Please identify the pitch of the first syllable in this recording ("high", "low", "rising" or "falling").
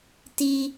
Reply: high